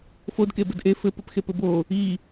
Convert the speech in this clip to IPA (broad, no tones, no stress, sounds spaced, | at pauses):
f o d k e b ɘ d ʔ e f ɘ p ɘ p x e p ɘ b o | i